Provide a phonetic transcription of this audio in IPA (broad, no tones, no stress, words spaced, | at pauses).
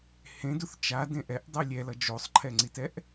hẽduθ t͡ʃadẽ ʔɛʔ dˤɯlʲɛlʌ d͡ʒosˤǃʰɛŋ͡ǀitɛʔ